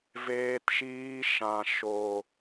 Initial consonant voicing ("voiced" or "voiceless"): voiced